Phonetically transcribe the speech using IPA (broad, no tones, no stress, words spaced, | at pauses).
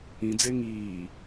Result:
ĩd͡ze ŋiː